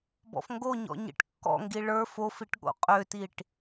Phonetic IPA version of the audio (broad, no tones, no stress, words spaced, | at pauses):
bɔ̰fŋɡoɲɔ̰ ɲḭʈkːɔ̰ŋɡi ɭə˞ fofiʈ ɠo̰qʼøtiʈ